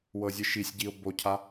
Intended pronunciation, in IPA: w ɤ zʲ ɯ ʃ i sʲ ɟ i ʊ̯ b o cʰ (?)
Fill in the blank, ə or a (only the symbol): a